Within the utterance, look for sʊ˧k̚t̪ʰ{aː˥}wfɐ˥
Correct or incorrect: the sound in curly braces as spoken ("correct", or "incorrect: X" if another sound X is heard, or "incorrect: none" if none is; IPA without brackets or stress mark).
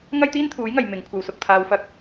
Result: incorrect: aː˧